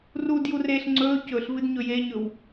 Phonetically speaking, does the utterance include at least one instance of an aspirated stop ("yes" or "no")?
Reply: no